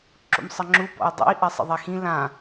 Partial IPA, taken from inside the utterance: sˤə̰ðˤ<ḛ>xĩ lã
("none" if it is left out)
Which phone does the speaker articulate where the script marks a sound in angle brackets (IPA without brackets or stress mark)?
e